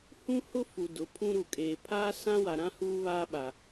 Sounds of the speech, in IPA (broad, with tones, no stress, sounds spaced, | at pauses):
h ũ˦ h ʊ˦ f u˨ d ʊ˨˦ pʰ ũ˦ ɾ u˨ kʼ eː˨ pʰ aː˦ s ã˦ w a˨ ɾ ã˦ h uː˦ β a˦ ɓ a˨